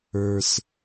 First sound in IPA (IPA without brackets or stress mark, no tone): ə˞